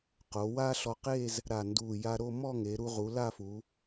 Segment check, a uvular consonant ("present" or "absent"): present